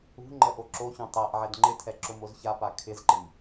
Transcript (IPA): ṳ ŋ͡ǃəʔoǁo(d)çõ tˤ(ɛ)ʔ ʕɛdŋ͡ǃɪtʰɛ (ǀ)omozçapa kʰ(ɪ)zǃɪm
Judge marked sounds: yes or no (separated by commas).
no, yes, no, yes